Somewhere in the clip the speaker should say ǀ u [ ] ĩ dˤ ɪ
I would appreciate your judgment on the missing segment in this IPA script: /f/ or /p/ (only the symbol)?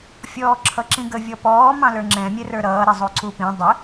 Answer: p